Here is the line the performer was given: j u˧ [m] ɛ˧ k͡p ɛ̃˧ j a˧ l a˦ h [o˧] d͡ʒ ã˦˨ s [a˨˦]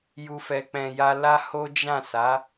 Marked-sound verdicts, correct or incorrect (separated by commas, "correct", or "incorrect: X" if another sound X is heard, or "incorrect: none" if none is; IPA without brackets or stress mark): incorrect: f, incorrect: o˦, correct